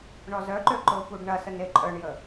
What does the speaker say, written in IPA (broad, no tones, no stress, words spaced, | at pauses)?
ɳɔzœǃø ǃʊpuɖ ɳɐsən eǃʼœɳjə